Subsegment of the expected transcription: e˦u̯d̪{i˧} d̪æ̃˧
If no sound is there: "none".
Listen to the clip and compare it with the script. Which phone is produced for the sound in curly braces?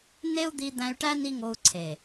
i˧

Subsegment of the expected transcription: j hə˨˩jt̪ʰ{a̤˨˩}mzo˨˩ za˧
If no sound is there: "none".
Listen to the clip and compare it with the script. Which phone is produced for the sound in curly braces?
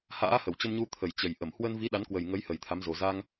a˨˦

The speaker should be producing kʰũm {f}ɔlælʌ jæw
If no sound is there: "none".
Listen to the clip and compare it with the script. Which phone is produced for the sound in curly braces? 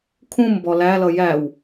b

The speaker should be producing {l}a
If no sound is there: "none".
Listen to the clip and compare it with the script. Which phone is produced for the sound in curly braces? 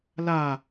l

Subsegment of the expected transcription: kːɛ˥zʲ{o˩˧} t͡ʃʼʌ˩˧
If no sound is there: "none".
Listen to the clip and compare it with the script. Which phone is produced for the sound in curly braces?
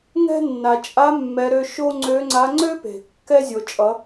o˩˧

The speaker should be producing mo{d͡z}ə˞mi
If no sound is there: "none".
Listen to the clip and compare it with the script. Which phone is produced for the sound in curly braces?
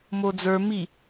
d͡z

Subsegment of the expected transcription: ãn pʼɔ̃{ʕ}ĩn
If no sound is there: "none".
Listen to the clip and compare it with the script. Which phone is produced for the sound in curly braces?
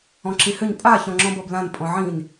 ʕ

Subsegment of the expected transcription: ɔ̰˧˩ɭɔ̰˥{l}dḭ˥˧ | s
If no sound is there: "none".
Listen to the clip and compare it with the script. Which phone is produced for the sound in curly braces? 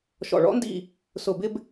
n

